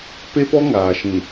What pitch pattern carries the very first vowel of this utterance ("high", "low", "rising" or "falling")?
high